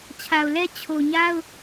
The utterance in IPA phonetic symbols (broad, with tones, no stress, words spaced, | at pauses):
t͡ɕʰa˨ʊ̯lɛ˦ t͡ɕʰo˨ɲa˦ʊ̯